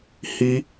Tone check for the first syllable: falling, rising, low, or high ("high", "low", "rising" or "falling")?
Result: high